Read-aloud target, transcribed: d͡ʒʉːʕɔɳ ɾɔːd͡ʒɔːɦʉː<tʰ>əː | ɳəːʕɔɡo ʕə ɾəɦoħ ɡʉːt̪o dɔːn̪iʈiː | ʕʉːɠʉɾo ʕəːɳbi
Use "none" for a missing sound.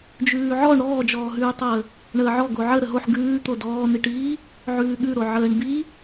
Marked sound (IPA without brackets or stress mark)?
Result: tˤ